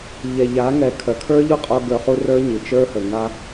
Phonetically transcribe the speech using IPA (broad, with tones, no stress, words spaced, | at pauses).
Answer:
ʎɛ˨ʎa˨˦ŋɛ˨ kʰœ˨kʰə˞˦ʎu˦qʼo˧ ɡə˞˧χu˦ rə˞˦ɲi˨ t͡ʃə˞˦hə˨ŋa˦